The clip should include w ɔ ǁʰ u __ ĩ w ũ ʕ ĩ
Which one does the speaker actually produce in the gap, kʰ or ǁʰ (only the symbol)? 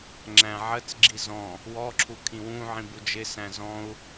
kʰ